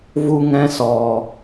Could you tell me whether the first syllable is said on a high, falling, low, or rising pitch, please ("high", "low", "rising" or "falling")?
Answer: high